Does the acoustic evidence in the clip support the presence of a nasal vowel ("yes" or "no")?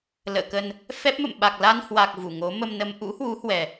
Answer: no